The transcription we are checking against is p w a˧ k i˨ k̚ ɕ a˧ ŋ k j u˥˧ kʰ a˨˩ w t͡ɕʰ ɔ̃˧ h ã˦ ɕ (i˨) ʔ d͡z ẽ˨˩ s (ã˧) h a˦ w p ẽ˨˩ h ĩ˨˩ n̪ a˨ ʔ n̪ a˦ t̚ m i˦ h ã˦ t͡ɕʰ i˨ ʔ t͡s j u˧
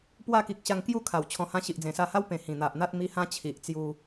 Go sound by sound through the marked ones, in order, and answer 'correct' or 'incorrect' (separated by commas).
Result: correct, incorrect